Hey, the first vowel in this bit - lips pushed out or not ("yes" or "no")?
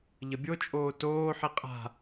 no